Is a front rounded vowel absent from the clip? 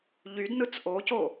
no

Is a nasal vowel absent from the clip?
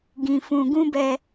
no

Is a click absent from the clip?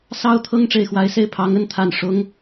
yes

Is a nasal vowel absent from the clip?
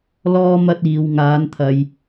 yes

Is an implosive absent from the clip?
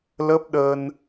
no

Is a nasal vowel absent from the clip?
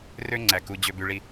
yes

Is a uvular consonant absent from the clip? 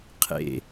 no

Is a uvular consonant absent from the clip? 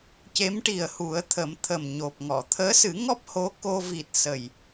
yes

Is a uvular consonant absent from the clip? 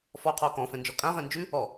no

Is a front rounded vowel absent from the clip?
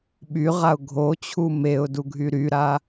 no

